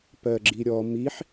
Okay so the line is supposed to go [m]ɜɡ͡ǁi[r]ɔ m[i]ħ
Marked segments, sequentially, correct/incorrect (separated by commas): incorrect, incorrect, correct